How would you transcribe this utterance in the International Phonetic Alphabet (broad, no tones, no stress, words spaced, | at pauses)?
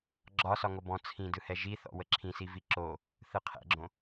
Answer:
ɡ͡ǁɒ sɒŋobɔ̃ t͡sʰĩ dɯhɛʒiθɔ̰ wəǁʰĩsivi ǁo | θɯqʰɛ̰ɡ͡ǁõ